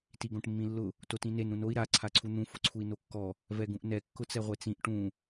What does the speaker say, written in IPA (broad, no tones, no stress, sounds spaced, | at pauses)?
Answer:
t i ɡ õ ʈ mː ĩ lː ʊ | t o t ĩ n e n ɾ ũ n o i̯ ɾ a ǀʰ a ǀʰ u n̪ ũ f ʊ ǀʰ u i̯ n o kː ɔ | v ɛ ɡ ũ ʔ n ɛ kː ʊ t͡s ɛ ʁʷ e t͡s ĩ ʔ ʈ ũ